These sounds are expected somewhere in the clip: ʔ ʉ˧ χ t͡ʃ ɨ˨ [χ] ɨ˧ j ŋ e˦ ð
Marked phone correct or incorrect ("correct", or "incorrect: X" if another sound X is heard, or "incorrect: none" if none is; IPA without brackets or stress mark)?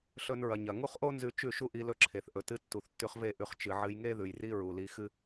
incorrect: ʕ